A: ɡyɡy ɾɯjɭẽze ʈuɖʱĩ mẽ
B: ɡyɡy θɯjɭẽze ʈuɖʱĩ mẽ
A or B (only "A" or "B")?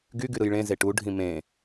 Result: A